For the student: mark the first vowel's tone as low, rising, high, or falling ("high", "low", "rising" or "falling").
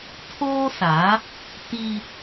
high